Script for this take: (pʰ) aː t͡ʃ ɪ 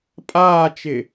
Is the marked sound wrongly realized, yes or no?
yes